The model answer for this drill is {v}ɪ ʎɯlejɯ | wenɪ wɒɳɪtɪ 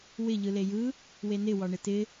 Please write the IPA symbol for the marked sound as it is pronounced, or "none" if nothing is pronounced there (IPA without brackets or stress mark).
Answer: w